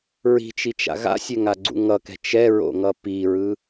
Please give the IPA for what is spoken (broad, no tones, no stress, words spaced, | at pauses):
ɹi̤t͡ʃit͡ʃa̰ ɣa̰sʲɛŋaɡ͡ǀṵ ŋʌkɛ̤ t͡ʃɛɹo̰ŋʌ piɹɯ